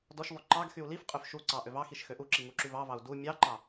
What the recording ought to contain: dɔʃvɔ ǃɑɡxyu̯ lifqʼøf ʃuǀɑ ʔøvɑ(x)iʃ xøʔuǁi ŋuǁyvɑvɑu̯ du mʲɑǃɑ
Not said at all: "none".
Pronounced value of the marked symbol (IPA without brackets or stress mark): x